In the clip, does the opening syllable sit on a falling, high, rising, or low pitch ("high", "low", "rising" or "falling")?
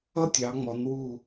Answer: high